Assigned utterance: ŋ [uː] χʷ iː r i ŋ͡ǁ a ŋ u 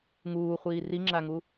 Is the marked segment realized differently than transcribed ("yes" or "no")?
no